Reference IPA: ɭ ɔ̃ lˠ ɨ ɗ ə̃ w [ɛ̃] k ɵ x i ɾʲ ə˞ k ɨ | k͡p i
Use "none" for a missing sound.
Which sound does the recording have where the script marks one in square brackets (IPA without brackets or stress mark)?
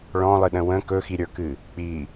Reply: ə̃